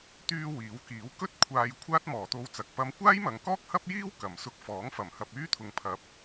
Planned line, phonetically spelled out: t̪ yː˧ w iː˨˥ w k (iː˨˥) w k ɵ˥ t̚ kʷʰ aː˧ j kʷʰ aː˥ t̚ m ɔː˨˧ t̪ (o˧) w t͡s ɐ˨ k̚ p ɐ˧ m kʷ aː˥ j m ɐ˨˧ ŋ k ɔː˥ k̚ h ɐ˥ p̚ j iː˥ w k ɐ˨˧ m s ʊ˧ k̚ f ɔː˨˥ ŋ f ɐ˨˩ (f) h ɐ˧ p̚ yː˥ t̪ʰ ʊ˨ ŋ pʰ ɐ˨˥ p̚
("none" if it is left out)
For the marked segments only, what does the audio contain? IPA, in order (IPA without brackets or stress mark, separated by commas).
iː˨˥, o˧, m